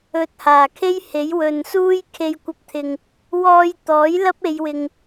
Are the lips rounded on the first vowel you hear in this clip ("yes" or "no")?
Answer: yes